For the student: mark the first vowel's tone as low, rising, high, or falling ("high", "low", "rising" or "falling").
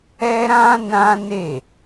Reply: high